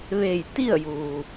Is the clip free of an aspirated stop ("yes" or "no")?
yes